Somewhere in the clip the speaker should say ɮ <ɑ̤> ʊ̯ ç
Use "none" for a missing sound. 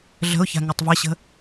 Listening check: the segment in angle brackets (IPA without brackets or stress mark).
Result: ə̤